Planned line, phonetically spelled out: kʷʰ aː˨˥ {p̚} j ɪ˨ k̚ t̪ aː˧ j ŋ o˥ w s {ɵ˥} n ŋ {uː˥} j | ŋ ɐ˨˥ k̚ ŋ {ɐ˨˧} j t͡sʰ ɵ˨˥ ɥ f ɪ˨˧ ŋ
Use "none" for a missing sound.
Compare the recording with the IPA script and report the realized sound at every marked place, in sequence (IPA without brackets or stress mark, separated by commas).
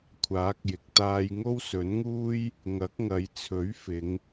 k̚, ɵ˨˥, uː˥, ɐ˨˧